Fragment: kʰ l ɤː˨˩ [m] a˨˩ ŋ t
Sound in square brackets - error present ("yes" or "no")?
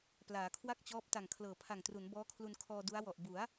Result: yes